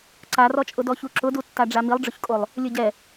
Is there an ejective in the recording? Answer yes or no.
yes